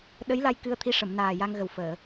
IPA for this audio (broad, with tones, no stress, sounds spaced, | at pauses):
ɗ ə˧˥ j l a˧ j k ɨ˧ ə̯ t̪ʰ i˧˥ ʂ ə˨˩˨ m n aː˨˩ j a˧ ŋ ɣ ə˨˩ w f əː˨˩˨